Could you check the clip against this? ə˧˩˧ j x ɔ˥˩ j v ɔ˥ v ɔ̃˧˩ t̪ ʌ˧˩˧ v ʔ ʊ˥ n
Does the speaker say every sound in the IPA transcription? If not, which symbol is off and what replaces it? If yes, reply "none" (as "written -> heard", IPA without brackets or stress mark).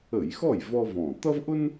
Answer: ʌ˧˩˧ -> ʌ˥